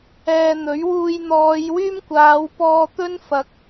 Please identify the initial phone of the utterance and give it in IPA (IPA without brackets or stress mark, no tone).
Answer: ɛː